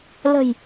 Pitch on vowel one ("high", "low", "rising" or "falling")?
low